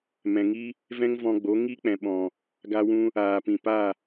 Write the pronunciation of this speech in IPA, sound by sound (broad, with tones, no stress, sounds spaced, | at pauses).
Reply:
m ɛ̃˨ ŋ i˦ | v ɛ̃˦ ŋ v ɔ̃˧ ɡ͡b o˨˦ ŋ i˦ k͡p ɛ̃˨ ɓ ɔ̃˨ | ɡ a˧ w ũ˧ | aː˨ p ĩ˨ p a˦˨